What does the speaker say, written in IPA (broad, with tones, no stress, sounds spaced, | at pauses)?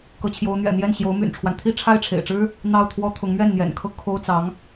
k ɤ˧˥ t͡ɕʰ j o˧˥ ʊ̯ n̪ ɥ ɛ̰˨˩ n̪ j ɛ˥˩ n ɕ j o˧˥ ʊ̯ m y̰˨˩ n ʈ͡ʂʰ w a˦ n t̪ʰ i˥˧ ʈ͡ʂʰ a˥˩ ɪ̯ ʈ͡ʂʰ ḛ˨˩ ɪ̯ ʈ͡ʂ ɻ̩˥ | n̪ ɑ˥˩ ʊ̯ t̪ʰ w ɔ˥ t̪ʰ ʊ˧˥ ŋ m ɥ ɛ˥˩ n n̪ j ɛ̰˨˩ n kʰ ɤ˥ kʰ o˥ ʊ̯ t͡s ɑ˧˥ ŋ